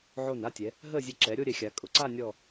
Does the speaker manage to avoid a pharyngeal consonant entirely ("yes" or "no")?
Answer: no